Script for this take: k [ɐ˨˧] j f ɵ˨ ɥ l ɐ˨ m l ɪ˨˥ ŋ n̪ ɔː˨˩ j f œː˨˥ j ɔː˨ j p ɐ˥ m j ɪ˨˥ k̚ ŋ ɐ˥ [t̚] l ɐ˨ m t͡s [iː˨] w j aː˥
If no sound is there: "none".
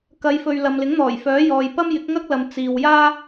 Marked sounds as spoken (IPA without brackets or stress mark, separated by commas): ɐ˨˧, k̚, iː˨